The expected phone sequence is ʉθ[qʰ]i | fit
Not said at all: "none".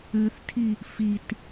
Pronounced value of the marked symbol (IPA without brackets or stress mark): tʰ